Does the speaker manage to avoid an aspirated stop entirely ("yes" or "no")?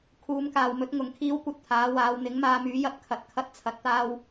no